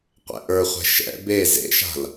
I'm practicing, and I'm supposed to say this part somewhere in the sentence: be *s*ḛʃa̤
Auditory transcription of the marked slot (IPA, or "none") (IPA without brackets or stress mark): z